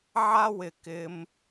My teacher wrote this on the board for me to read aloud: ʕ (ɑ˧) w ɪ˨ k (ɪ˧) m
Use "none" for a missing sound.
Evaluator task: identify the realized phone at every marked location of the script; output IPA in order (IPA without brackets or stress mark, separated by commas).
a˧, ɪ˧